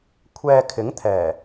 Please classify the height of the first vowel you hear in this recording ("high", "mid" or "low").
mid